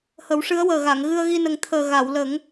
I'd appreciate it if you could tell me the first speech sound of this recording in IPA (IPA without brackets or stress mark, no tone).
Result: h